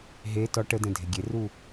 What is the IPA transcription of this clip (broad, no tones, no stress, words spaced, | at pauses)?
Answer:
ɦe tɔ ʈədɛ̃ dʱeɡʲeru